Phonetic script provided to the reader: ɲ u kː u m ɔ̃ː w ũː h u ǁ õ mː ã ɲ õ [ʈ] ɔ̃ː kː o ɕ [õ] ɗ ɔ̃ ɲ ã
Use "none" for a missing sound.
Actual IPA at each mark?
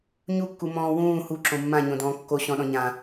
d, ɔ̃

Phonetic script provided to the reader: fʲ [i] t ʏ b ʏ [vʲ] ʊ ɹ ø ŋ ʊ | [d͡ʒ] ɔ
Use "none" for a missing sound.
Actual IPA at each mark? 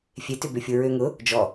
e, fʲ, d͡ʒ

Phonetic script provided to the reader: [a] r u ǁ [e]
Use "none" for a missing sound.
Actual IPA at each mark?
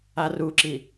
a, i

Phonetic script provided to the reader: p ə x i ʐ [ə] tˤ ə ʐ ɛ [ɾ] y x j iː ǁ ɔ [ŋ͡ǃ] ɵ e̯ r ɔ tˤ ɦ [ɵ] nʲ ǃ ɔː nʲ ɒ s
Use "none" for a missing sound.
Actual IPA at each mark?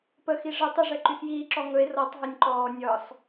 ə, ǃ, ŋ, ɵ

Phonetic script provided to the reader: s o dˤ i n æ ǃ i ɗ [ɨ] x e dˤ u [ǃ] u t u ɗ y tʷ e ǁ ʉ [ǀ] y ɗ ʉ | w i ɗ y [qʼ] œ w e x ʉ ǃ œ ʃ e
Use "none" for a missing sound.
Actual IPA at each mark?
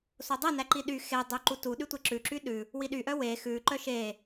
y, ǃ, ǁ, ʔ

